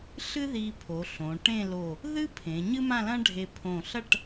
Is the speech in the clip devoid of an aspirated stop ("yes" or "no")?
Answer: no